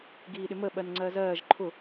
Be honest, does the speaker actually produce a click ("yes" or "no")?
yes